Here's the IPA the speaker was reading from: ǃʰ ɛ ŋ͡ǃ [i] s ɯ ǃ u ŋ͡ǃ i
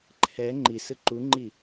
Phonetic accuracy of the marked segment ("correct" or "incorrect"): correct